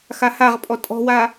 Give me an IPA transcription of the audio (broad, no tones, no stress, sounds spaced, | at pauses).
x a h a ʁ pʼ ɔ tʼ ɔ̤ w a